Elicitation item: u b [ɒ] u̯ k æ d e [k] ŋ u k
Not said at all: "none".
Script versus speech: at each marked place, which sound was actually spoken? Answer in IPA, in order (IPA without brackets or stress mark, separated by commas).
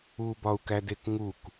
ɒ, k